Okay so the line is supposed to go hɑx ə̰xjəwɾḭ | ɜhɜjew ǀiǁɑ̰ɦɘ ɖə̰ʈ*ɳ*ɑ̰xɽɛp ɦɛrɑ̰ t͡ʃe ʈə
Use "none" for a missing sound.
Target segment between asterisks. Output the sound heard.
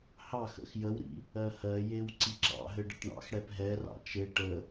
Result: ɳ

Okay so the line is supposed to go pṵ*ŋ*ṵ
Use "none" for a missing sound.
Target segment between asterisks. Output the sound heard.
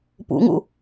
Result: ŋ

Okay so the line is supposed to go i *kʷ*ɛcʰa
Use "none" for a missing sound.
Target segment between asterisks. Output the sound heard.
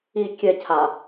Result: kʲ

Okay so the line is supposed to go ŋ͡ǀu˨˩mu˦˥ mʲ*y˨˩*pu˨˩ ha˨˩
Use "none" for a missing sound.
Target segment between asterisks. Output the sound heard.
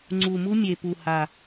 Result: e˨˩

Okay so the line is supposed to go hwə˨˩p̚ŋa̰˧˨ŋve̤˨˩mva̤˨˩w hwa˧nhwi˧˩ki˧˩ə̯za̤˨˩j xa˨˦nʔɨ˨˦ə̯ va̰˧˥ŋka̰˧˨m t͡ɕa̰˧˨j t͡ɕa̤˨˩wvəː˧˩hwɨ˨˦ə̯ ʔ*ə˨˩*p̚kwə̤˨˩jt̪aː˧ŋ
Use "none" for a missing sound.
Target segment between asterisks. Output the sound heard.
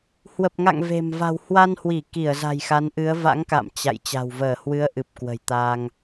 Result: ɨ˨˩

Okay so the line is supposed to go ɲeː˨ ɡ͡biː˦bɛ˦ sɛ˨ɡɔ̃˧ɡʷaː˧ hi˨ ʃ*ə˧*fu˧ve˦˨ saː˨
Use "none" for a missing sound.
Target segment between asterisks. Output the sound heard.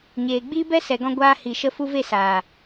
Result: ə˧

